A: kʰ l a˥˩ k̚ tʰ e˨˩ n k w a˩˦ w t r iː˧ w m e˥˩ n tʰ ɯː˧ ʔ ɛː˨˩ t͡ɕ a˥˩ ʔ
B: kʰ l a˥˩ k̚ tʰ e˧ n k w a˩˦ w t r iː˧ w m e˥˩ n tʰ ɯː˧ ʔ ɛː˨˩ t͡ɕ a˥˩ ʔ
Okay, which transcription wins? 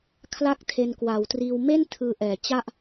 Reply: B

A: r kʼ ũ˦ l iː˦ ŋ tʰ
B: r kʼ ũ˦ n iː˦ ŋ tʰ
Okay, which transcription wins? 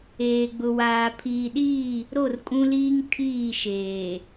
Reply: A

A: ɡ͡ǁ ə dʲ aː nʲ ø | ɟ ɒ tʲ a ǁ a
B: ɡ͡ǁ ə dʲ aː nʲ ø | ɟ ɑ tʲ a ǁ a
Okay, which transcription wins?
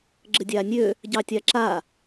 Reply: B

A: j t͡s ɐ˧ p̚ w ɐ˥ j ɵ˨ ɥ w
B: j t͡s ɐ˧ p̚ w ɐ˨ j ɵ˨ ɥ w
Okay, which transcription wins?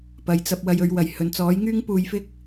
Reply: B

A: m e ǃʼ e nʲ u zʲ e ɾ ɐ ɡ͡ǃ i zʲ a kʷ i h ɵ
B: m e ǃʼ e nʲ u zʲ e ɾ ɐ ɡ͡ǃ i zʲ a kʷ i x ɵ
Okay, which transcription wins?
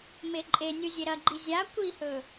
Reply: A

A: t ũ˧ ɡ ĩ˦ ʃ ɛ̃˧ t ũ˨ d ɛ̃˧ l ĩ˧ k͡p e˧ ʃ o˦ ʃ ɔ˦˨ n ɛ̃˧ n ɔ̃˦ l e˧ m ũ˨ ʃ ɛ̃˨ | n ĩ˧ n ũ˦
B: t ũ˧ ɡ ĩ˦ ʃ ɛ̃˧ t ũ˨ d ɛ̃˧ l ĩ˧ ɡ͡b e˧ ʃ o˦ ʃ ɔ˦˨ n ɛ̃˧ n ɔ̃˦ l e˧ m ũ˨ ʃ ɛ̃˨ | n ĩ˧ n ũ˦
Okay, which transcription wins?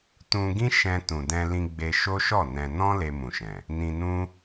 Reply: B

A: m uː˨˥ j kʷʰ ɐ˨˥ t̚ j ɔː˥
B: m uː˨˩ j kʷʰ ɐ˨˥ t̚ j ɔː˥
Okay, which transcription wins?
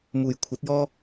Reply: B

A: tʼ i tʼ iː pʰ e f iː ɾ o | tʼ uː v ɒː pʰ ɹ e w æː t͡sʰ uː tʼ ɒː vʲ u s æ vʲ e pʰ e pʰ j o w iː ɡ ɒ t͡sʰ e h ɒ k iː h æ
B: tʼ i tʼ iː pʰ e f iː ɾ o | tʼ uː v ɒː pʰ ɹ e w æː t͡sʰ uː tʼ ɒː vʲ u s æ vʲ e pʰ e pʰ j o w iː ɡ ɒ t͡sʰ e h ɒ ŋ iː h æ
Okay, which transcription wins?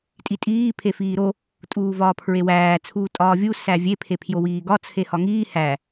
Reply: B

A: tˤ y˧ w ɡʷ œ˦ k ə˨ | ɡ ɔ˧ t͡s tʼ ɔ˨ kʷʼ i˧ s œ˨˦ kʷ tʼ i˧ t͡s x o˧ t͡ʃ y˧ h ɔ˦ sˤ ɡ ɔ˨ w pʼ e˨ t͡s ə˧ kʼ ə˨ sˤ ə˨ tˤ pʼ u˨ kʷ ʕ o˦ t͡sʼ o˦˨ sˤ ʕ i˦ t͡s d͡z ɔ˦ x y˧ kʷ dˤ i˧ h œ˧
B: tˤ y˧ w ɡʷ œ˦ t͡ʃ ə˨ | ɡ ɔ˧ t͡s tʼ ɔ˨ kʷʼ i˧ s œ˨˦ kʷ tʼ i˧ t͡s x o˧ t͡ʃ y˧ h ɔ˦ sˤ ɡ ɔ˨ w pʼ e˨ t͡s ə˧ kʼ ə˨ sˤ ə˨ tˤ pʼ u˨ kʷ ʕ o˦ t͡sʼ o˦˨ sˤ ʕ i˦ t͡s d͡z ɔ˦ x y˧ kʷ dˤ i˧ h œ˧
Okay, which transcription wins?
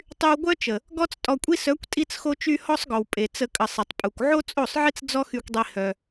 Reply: B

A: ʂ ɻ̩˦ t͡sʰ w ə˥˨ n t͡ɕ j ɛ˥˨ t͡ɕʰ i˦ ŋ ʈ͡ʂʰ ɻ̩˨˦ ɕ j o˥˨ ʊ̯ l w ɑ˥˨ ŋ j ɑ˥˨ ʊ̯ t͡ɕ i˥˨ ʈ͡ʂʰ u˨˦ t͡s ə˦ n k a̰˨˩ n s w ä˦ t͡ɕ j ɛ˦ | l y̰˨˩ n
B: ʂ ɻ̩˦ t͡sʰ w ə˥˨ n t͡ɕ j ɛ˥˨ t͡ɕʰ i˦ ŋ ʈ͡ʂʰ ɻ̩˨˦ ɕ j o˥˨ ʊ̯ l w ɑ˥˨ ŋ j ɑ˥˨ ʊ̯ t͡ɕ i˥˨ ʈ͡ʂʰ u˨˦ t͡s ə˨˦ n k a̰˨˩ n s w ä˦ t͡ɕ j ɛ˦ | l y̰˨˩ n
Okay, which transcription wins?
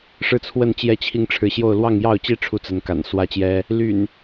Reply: B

